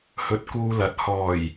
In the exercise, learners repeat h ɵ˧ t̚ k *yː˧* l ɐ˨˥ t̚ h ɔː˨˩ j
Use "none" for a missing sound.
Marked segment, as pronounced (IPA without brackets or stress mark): uː˧